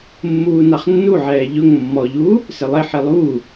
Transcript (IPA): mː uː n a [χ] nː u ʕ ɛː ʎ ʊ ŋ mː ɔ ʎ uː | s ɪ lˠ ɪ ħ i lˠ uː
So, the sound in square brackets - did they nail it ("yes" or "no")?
yes